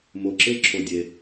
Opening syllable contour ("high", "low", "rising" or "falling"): low